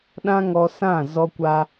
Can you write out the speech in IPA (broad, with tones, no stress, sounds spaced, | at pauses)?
ɗ ã˦ ŋ ɔ˧ s ã˦˨ z ɔ˦ kʷ a˦